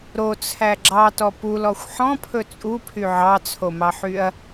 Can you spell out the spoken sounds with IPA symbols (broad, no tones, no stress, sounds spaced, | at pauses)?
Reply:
ɾ o t͡sʰ æ ɡ͡ǁ ɑ t ɔ p u l ɔ xʷ ħ ɔ̃ pʰ ɵ t͡sʼ u pʰ y ʕ ɑ t͡sʰ o m ɑ ħ y ɐ̯